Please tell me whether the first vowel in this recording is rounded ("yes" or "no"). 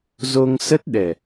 yes